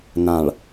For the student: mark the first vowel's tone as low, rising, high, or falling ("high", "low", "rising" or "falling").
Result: low